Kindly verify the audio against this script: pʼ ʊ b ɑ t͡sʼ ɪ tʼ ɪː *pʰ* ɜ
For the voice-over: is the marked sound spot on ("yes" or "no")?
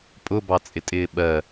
no